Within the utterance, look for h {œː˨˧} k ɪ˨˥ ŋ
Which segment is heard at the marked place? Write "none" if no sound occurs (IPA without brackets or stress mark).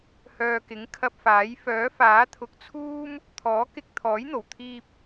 œː˨